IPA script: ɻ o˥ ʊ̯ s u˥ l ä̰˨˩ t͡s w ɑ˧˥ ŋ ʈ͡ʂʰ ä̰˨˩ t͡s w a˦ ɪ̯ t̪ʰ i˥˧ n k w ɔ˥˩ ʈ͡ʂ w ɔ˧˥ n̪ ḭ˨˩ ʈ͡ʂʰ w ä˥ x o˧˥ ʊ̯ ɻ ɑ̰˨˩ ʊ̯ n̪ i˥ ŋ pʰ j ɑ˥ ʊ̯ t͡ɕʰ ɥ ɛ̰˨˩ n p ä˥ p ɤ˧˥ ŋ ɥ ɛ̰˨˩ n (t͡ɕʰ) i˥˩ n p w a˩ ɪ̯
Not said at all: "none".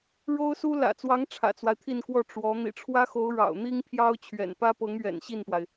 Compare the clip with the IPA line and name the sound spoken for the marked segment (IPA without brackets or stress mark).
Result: ɕ